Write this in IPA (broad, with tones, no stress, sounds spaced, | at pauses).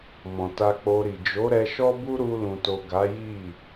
m ɔ̃˨ t a˧ k͡p o˧ ɾ i˨ d͡ʒ o˨˦ ɾ ɛ˧ ʃ ɔ˦ b u˦ ɾ u˧ l ũ˨ t o˨ ɡ a˨˦ j i˦˨